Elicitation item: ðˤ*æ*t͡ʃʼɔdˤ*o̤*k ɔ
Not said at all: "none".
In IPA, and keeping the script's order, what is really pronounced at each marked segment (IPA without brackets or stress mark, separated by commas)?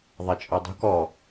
ɛ, o̤